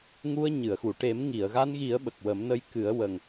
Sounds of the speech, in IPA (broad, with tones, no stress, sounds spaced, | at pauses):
ŋ u˧ ə̯ ɲ ɨ˨˩˨ ə̯ x u˨˩˨ ʈ e˨˩˦ m ŋ i˨˩˨ ə̯ ɣ a˧ n ɣ i˨˩˦ ə̯ ɓ ə˨˩ k̚ w ə˨˩˦ m n ə˧ j k ɨ˨˩˦ ə̯ w ə˨˩ ŋ